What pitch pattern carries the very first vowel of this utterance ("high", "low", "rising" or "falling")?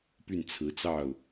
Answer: falling